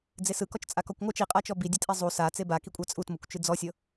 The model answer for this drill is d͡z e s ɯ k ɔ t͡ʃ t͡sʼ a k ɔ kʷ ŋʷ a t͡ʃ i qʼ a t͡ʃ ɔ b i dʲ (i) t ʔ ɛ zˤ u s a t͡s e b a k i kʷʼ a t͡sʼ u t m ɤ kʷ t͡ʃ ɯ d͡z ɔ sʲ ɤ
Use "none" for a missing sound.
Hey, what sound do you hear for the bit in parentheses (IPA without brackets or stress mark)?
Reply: e